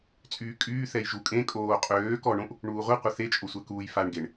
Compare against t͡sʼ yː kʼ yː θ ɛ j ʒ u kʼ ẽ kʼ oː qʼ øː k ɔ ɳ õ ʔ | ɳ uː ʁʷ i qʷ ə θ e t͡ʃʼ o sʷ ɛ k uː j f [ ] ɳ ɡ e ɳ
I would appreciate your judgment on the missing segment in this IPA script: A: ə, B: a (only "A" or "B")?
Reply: B